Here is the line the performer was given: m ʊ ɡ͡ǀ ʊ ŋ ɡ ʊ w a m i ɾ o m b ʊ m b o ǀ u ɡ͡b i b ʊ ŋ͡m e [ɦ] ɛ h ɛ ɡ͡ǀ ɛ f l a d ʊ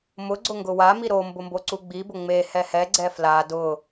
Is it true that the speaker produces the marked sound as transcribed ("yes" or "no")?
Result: no